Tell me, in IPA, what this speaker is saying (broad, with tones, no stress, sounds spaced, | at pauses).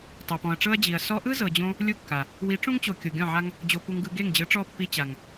tˤ o˨ p ɔ̃˨ ɐ̯ ʈ͡ʂ ɤ˦ ɐ̯ d͡ʑ i˨ ɐ̯ s ɔ˧ ʔ ɯ˦ z ɤ˨ d͡ʑ õ˧ | lʲ u˦ kː a˨ | w i˨˦ ʈ͡ʂ ũ˦ ŋ t͡ɕ o˨ kʲ o˨ ɡʲ ɔ̃˦˨ ʕ a˦ ŋ | d͡ʑ o˧ p u˧ ŋ ɡ ɯ˧ ɡ e˦˨ ŋ d͡ʑ ɯ˨˦ ʈ͡ʂ ɔ˦˨ pː i˧ t͡ɕ a˨ ŋ